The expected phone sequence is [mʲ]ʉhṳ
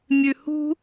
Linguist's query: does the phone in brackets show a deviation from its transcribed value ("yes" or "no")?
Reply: no